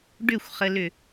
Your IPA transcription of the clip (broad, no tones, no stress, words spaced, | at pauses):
ɖʏxʷχəlʏ